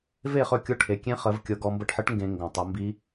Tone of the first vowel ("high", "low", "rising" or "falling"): falling